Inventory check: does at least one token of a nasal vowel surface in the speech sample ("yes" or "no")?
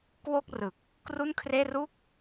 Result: no